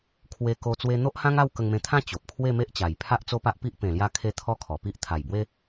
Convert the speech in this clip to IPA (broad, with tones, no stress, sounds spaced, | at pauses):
kʰ w e˧ k o˧ t͡s w e˧ n̪ o˦ ʔ h ã˦ ŋ a˥˧ w k ə˧ ŋ m ẽ˧ t̪ʰ ã˦ t͡ɕ o˨ p̚ kʰ w e˥˧ m e˦ ʔ t͡ɕ a˨˩ j pʰ a˦ ʔ t͡s o˦ p a˦ ʔ p i˦ ʔ p ẽ˨˩ l j a˧ kʰ e˧ t̪ʰ ɔ˦ kʰ ɔ˨˩ p i˦ ʔ t̪ʰ a˨˩ j b w e˦